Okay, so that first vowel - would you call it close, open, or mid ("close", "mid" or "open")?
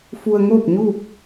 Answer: close